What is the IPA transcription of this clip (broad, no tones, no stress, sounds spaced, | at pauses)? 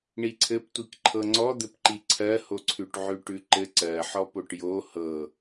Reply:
ɳ i ǀʰ ɘ p tʷ i k ǃʰ ɤ ŋ͡ǀ ɔ d̪ ɘ p ǃ i ǀʰ ɜ h o ǀʰ ʉ ʈ ʕ ʉ ʈ ʉ ǃ ɘ ǀ ɜ ħ ɔ p o ʈ j o h ɤ